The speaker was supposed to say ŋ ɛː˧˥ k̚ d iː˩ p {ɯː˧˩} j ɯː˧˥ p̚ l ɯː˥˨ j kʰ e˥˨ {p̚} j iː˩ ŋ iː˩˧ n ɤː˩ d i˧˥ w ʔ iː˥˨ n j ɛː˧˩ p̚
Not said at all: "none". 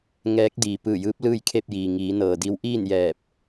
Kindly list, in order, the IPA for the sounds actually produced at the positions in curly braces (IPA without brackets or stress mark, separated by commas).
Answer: ɯː˧˩, p̚